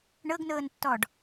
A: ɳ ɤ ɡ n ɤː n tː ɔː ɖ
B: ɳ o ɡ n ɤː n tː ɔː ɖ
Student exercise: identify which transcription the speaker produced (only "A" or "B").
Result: A